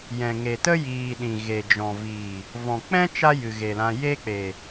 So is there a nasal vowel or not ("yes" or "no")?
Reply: yes